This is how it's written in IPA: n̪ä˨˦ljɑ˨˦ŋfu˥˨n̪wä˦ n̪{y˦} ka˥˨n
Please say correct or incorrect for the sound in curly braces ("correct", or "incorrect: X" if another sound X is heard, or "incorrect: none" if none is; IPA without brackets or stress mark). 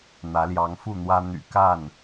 incorrect: y̰˨˩